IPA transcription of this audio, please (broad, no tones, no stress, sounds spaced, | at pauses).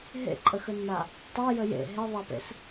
ɦ ḛ ǃʼ ə x ə nː a | tˤ ɛ j ə j ḛ ɦ e ðˤ a p ḛ s